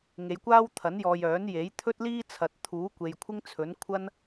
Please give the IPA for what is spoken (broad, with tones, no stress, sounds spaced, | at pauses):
ŋ e˨˧ j kʷ aː˥ w t̪ʰ ɐ˨˥ n j ɔː˨ j œː˨˥ n j e˨˥ j t̪ʰ ɵ˥ t̚ l iː˥ t͡sʰ ɐ˨ t̚ t̪ʰ uː˨˥ kʷ e˨ j kʷʰ ɪ˥ ŋ t͡sʰ ɵ˨˥ n kʷʰ ɐ˥ n